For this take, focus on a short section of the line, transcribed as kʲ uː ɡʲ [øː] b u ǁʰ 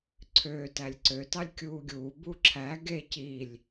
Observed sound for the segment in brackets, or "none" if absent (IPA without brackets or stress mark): uː